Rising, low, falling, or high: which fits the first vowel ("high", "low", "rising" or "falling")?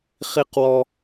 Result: high